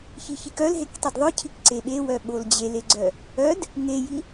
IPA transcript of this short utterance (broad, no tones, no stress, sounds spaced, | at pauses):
ç i ç i k œ l ɦ e k tˤ i d ðˤ œ cʰ i k ǀ e ɓ e w œ ɓ o l d͡ʑ e l e ɡ͡ǀ œ | œ d | ŋ e j i